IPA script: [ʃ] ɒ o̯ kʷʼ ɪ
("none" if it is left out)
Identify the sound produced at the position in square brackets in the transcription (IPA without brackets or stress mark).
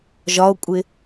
ʒ